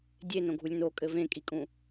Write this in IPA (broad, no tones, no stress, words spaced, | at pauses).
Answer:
dʲenõɡʱulʲ nokʼɘ vẽkʼikʼũ